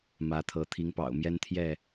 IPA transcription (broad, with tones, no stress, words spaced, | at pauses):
mä˨˦t̪ʰɤ˨˦ t̪ʰi˨˦ŋpɑ̰˨˩ʊ̯ mjɛ˦nt̪ʰjɛ˥˨